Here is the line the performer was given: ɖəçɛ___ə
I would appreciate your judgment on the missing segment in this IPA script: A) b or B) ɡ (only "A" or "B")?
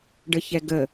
B